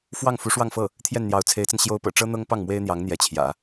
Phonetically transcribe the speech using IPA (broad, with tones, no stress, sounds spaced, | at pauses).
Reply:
f w ɑ˥˩ ŋ f u˧˥ ʂ w ɑ˥˧ ŋ f ɤ˥˩ | t̪ʰ j ɛ˥˩ n n̪ j ɑ˧˥ ʊ̯ t͡sʰ e˧˥ ɪ̯ t͡s ə˧ n ɕ j o˥ ʊ̯ p ɤ̰˨˩ ʈ͡ʂ ɤ˥ n̪ ɤ˥ ŋ p ɑ˥˩ ŋ m w e˥ ɪ̯ n̪ j ɑ˧˥ ŋ n̪ j ɛ˧˥ t͡ɕʰ j ä̰˨˩˦